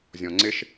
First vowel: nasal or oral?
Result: nasal